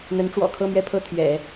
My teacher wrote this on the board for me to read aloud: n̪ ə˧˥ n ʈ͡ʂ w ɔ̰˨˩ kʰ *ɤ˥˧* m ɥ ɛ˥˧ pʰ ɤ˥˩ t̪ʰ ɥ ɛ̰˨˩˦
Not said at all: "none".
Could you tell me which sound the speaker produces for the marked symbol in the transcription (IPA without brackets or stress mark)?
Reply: ɤ˥˧